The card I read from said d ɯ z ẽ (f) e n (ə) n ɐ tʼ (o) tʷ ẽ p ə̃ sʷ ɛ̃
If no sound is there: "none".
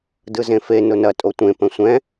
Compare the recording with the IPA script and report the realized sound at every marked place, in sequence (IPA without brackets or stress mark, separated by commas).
f, ʊ, o